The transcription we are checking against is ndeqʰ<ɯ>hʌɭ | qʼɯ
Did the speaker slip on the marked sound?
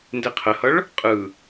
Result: yes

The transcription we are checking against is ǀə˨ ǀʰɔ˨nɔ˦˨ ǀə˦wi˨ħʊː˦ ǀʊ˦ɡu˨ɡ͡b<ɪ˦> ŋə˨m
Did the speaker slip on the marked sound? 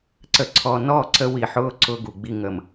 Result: yes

